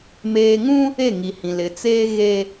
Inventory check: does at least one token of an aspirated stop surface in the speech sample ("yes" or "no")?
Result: no